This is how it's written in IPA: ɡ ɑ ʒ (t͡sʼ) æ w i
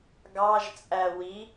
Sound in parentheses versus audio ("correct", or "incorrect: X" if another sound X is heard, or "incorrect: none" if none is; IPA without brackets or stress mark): correct